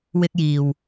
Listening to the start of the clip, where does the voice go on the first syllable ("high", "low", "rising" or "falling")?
high